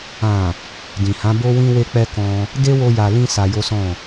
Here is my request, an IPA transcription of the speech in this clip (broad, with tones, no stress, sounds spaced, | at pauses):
ã˨ | d ĩ˨ h ã˨˦ b o˦ w ĩ˦ w e˦ k͡p ɛ˦ k ɔ̃˧ | d e˦ w o˧ j a˨ l ĩ˧ s a˧ j o˦ s ɔ̃˦˨